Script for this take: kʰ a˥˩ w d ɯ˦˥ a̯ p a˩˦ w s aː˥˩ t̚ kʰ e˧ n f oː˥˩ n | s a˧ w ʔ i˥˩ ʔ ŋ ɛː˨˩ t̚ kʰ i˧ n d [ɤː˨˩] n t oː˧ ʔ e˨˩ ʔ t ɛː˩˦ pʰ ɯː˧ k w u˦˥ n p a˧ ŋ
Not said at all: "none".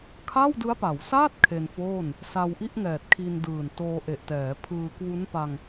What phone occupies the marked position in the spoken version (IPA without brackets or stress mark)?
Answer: ɯː˨˩